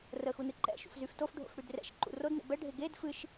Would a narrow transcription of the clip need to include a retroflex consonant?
yes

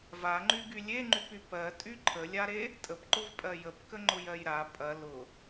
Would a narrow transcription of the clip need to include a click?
yes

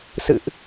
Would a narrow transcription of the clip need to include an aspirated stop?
no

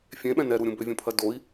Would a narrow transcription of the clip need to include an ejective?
no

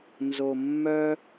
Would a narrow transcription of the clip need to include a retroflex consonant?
no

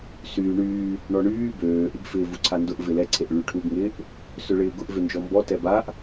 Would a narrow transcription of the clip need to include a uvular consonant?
no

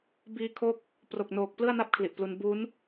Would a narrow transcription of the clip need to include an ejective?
no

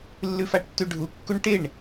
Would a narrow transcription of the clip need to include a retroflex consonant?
yes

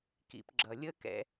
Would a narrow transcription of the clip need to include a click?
yes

